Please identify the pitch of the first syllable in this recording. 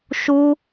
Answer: high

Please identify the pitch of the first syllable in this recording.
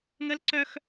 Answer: high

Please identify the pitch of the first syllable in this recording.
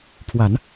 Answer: low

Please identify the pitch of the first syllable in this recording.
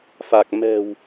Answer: low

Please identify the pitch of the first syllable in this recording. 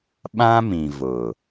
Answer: high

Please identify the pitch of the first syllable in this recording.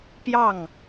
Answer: falling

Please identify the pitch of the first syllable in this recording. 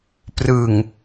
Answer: low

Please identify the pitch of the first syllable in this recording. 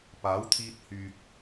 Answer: rising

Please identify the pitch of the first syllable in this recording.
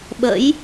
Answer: rising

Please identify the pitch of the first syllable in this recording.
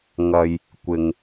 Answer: low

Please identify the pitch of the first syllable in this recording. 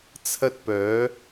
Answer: high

